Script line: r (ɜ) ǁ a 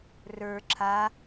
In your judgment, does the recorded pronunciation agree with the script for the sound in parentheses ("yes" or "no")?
no